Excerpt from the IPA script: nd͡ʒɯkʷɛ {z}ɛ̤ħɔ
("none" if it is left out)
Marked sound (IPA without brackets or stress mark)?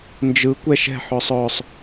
ʃ